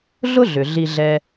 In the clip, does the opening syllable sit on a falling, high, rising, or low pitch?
high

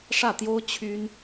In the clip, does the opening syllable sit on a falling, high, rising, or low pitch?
falling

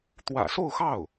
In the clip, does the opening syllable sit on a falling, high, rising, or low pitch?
low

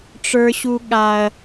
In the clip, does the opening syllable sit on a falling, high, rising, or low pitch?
high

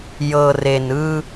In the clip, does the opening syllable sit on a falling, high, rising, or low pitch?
low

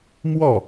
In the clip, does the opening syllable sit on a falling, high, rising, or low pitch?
falling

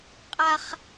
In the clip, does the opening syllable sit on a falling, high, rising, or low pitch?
high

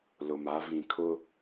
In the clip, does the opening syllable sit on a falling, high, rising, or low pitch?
low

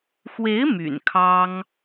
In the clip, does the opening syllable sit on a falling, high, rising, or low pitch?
rising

